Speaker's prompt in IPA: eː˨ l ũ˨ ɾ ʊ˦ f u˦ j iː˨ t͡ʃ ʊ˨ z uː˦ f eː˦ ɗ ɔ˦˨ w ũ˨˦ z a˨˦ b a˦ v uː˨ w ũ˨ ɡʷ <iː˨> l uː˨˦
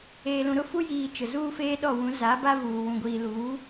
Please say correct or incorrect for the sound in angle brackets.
correct